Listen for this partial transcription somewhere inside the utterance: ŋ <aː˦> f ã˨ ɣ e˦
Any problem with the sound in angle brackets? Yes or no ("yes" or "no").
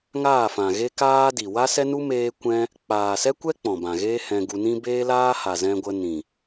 yes